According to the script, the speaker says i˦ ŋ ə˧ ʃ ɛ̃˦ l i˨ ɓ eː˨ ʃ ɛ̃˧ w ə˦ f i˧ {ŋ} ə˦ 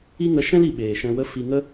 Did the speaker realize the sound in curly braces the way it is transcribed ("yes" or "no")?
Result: yes